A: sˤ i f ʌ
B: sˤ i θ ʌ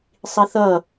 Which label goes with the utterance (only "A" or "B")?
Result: B